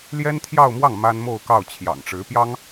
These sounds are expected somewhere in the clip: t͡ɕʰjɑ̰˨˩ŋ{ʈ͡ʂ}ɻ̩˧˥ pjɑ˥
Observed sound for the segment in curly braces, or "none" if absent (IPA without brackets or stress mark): ʈ͡ʂ